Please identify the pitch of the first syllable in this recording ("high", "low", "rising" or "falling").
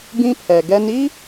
high